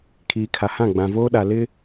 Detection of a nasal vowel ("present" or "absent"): present